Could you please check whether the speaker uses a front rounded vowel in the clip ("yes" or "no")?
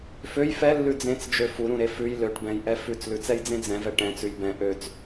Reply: yes